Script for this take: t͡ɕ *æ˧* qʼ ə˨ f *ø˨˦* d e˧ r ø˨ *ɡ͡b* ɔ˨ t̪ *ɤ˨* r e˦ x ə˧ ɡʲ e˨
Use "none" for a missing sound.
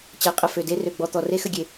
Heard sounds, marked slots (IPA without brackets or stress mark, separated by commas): æ˧, ø˨, ɡ͡b, ɔ˨